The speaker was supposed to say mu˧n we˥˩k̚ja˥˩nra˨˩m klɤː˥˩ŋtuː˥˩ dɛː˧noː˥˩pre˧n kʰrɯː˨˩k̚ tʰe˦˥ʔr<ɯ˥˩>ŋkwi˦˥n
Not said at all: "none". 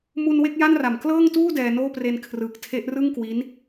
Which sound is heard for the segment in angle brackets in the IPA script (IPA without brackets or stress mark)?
ɯ˥˩